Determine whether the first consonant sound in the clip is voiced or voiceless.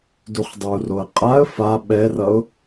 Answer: voiced